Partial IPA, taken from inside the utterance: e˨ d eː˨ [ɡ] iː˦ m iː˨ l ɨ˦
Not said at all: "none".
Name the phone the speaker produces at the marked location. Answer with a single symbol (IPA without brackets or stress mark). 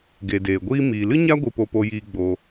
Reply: ɡʷ